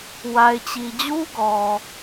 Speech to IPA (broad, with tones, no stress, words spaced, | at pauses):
wa˨ɪ̯t͡ɕi˨d͡ʑu˦ ɡɔ˨